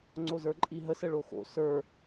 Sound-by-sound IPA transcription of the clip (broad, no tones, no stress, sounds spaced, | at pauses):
ŋ͡ǀ o z ə˞ ǃʼ i ɦ ə s ə ɭ o x o̰ s ə˞